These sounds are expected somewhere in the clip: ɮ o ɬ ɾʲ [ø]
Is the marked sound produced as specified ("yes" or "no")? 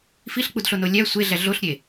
no